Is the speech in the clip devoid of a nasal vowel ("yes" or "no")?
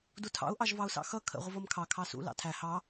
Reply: yes